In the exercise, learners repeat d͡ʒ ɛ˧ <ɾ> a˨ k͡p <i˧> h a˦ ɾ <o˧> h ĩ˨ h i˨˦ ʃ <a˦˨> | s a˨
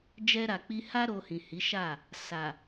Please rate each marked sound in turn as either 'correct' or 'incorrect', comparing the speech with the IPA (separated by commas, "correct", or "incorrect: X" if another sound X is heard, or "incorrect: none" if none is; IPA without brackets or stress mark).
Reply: correct, correct, correct, correct